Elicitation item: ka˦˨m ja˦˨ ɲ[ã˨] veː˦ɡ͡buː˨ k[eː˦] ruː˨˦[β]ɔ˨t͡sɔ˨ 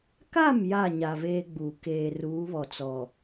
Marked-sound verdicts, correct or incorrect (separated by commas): incorrect, incorrect, correct